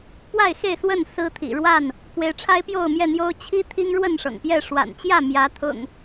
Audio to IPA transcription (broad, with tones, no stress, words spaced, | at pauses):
pwa˥˨ɪ̯xe˥˨ɪ̯swə˥˨n sɹ̩˦t̪ʰḭ˨˩ ɻwa˥˨n | kwe˨˦ɪ̯ʈ͡ʂʰa˦ɪ̯ pjo˥˨ʊ̯mjɛ˥˨n̪jo˦ʊ̯ t͡ɕʰi˦ t̪ʰi˦ŋɻwə˥˨nʂɤ̰˨˩ŋpjɛ˥˨ ʂwa̰˨˩nt͡ɕjä˥˨ mjä˨˦t̪ʰʊ̰˨˩ŋ